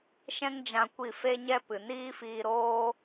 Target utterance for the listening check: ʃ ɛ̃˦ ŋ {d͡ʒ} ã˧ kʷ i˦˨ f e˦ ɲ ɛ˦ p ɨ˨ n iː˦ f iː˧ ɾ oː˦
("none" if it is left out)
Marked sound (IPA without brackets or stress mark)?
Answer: d͡ʒ